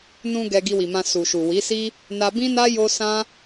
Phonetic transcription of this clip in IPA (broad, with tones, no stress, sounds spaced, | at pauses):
n ũ˧ ɡ ɛ˧ ɡ i˧ w i˨ m ã˧ s u˨ ʃ u˨ w i˨˦ s i˦ | n a˧ b ĩ˦ n a˦ j o˦ s ã˦